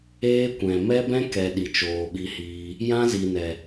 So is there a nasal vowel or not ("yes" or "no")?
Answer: yes